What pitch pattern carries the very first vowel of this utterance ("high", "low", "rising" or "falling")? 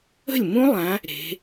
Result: falling